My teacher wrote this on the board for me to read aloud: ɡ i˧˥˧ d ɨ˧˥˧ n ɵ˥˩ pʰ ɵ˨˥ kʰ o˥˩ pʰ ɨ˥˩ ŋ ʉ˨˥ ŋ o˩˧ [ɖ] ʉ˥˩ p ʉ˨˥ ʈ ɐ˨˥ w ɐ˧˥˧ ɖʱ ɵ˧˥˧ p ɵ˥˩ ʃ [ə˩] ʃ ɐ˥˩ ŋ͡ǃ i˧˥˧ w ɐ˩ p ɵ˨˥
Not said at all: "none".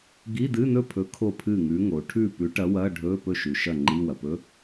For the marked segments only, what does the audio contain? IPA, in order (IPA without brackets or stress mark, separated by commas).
ʈʰ, ʉ˩